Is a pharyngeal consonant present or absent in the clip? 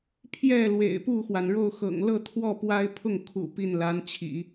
absent